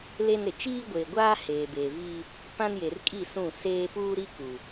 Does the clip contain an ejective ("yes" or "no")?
yes